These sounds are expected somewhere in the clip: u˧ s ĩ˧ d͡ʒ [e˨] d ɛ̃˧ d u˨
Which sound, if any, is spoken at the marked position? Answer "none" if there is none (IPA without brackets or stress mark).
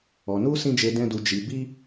e˨